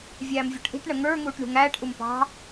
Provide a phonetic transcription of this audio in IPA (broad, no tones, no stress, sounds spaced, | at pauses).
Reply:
vʲ æː m vʲ ɔ ʈ ʔ i̤ ʈ ɳ ə ŋ ə˞ ŋ uː ʈ ɳ ṳ ŋ æː ʈ ʔ u m p ɑ̤